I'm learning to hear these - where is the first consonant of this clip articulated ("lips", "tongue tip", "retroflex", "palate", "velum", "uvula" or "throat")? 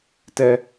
tongue tip